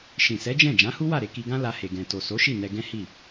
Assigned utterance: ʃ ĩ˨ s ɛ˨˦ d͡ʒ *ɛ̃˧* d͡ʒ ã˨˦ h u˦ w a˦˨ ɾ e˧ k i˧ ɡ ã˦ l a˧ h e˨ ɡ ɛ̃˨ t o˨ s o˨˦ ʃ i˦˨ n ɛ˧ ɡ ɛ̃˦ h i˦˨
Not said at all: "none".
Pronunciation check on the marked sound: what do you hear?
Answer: ɛ̃˦˨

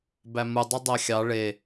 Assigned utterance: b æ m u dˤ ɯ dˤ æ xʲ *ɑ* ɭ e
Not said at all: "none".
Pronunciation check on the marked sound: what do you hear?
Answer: ɑ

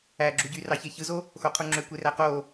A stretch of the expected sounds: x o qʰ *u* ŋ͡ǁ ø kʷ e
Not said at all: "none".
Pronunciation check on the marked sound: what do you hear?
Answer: u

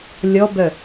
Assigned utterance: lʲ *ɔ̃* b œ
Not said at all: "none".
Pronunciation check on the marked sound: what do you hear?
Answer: ɔ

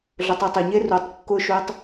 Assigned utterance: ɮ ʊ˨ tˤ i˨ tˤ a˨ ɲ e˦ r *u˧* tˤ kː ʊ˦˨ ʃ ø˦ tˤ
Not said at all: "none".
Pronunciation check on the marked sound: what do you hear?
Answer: u˨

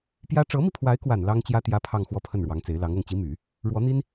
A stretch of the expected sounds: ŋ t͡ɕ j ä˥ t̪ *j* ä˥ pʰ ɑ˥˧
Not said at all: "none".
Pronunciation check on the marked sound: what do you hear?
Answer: j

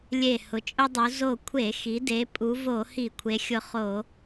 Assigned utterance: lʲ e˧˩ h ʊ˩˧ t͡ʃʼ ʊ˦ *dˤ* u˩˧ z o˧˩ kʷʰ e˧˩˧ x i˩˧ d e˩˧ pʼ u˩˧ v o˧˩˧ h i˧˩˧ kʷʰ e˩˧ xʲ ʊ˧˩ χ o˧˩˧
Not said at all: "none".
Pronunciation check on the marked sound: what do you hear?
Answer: dˤ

